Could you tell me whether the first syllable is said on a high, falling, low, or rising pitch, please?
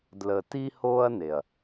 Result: low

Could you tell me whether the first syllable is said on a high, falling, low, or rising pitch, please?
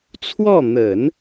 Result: falling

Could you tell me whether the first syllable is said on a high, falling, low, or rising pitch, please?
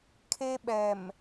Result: high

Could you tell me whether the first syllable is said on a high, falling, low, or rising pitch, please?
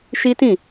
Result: high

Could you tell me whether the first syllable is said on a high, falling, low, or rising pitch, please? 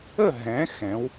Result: falling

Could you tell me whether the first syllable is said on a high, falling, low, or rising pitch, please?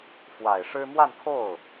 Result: low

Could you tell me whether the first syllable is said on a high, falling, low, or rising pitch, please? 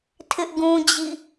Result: high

